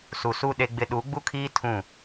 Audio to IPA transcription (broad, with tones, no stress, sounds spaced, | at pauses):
s u˨ s u˦ ɗ e˦ ɡ͡b ɪ˦ ɗ u˨˦ ɡ͡b u˦ kʰ iː˦ tʰ ũ˦˨